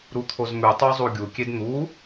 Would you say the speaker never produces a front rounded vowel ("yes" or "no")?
yes